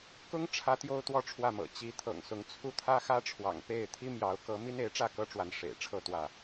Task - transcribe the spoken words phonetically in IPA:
k ʊ˦ ŋ ʈ͡ʂʰ ä˨˦ t̪ j o˦ ʊ̯ t̪ w ɔ˥˨ ʈ͡ʂʰ w ä˥˨ m ɤ̰˨˩ t͡ɕ i˨˦ t̪ʰ ɤ̰˨˩ ŋ s ʊ˨˦ ŋ t͡sʰ u˦ t̪ʰ ä˦ x ä˦ ʈ͡ʂʰ w ɑ̰˨˩ ŋ p e˥˨ ɪ̯ t̪ʰ i˦ m j ɑ˨˦ ʊ̯ k ɤ˨˦ m i˦ n e˨˦ ɪ̯ ʈ͡ʂ ä˥˨ k ɤ˦ ʈ͡ʂ w a˨˦ n ʂ ḛ˨˩ ɪ̯ ʈ͡ʂʰ ɤ˥˨ t̪ w ä˥˨

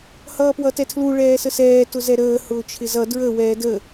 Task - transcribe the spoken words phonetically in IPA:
h ʌː p w ʌ t ɛ tʰ l u ɭ ɛː s ə s ɛː t ʊ z ɛ ɾ əː h ʊː t͡ʃʰ ɪ z ʌ d ɹ ə w ɛː d ə

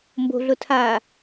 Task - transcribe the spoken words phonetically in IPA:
m b o̤ ɮ ʊ tʰ aː

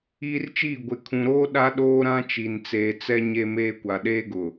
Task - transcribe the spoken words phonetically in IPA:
iː˦ r t͡ʃ iː˦˨ ɡʷ ɪ˨ kʰ ũ˨ ɾ oː˦ ɗ a˦ ɗ oː˦ ɾ ã˦ t͡ʃ i˨ n t͡s eː˨ t͡s ɛ˦ ɲ e˦ m eː˦ kʷ a˨ ɗ eː˦ ɡ ʊ˨

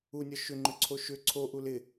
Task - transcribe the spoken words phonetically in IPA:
u nʲ ɒ ʃ ʏ ŋ͡ǃ ʏ ǀʰ o ʃ ʏ ǀʰ o ʔ u l ɪ

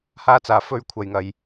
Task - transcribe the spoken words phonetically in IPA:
h aː˧ t͡s aː˨˩ f ɵ˧ ɥ kʷʰ ɐ˨˩ j ŋ ɐ˨˩ j

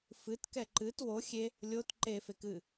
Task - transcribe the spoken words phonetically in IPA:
f ɨ t k ɛ ǃ ɨ t w o xʲ e | lʲ o t ǃ e f e k ɨ

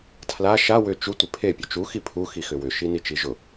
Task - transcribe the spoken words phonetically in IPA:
tʰ l a ʃ a w ʏ t͡ʃ u tʷ ɪ pʰ e pʲ ʊ t͡ʃ u x i pʰ u x i x ʏ w ʏ ʃ i n i t͡ʃ i ʒ ʊ

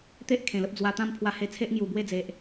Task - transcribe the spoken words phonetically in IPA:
t̪ e˦ ʔ kʰ ẽ˨˩ l ə˦ p̚ d͡z w a˧ t̪ ã˥˧ m pʰ w a˧ h e˧ t͡sʰ e˦ ʔ ŋ j u˨˩ b w e˥˧ d͡z e˨ ʔ

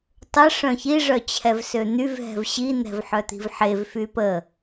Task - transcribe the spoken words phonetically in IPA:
tˤ ə ʂ œ̃ ç i ʐ œ t͡ɕʰ ɛ v s ø n̪ y v ɦ ɛ̤ v ɕ i n̪ ɛ̤ v ħ œ t̪ i̤ v ħ e v f y p ə

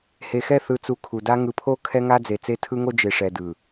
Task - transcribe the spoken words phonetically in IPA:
h e˨ x ɛ˦˨ θ ɯ˨ t͡s u˨ kʰ u˨ d a˦ ŋ ɯ˨ pʰ o˦ kʰ ɛ˦ ŋ a˦ d͡z e˨ t͡s e˦ tʰ ɯ˦ ŋ o˦ d͡ʒ e˨ ʂ ɛ˨ d ɯ˨

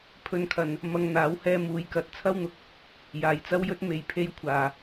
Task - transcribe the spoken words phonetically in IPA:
pʰ ɵ˧ n kʰ ɐ˨ n | m ɐ˧ ŋ n̪ aː˨˥ w h ɛː˧ m uː˨˧ j k ɐ˨ t̚ t͡sʰ ɐ˥ w n̪ ʊ˨ k̚ | j aː˨ j t͡s ɐ˥ w j ɵ˥ t̚ m e˧ j pʰ e˥ j kʷʰ aː˨

